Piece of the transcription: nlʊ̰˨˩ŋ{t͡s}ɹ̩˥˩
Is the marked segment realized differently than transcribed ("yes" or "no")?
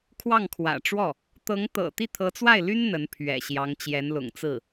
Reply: no